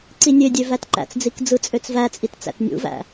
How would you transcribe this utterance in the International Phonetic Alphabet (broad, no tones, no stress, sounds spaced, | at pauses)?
ǀ i nʲ ø dʲ ø v æ t ǃ æ̰ t͡s d͡z i k d͡z ɯ t͡sʼ ø t͡s v æ t͡sʼ i t t͡s æ̰ t nʲ ṵ v æ̰